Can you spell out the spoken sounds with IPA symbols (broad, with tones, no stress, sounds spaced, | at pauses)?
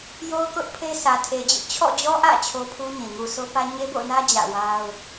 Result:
j o˦ ʊ̯ k ʊ˦ ʔ pʰ e˦ sʰ ä˨ tʰ e˨ d͡ʑ ɪ˦ ʔ t͡ɕʰ ɔ̰˦˨ d͡ʑ ɔ˦ ʔ ä̰˦˨ t͡ɕʰ o˦ pʰ u˦ ɲ ĩ˨ ŋ u˨ sʰ o˦ p ä˦ ɲ e˦ b o̰˦˨ n ä˦ d͡ʑ ä̰˦˨ w a˦ ʊ̯